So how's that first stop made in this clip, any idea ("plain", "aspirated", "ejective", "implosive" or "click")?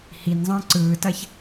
click